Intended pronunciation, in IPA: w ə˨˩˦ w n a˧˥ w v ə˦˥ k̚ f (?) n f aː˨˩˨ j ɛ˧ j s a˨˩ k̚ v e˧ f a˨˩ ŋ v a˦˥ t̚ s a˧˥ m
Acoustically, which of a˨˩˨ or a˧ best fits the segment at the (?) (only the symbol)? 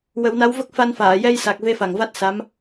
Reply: a˧